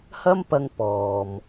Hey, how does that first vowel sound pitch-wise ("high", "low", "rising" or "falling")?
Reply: high